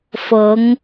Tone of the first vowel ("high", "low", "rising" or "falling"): rising